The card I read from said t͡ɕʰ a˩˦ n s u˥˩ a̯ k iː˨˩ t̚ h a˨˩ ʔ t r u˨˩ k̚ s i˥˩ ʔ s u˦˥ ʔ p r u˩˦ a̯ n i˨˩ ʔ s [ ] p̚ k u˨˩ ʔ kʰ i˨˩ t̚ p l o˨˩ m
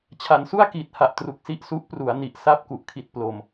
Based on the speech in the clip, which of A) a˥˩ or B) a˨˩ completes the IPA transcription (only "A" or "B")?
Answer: A